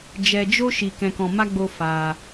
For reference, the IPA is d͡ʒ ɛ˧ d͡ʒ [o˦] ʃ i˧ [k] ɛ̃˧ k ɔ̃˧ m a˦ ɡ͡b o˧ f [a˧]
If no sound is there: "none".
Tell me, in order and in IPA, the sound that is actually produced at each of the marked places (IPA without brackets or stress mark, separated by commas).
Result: o˦, k, a˧